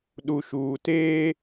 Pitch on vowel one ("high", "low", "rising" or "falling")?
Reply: low